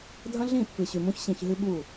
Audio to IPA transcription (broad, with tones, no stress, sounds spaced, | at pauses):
dʱ ɐ̃˦ ɮ ĩ˦˨ pː ɨ˨ ɕ ʉ˨ m ũ˦ ç ɕ ĩ˨ ç ɦ ɨ˦ ɓ u˦˨